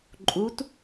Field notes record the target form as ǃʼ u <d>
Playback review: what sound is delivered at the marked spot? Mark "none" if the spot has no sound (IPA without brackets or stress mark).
t